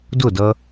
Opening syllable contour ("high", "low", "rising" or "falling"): falling